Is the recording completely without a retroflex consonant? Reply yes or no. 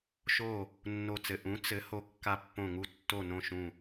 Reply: yes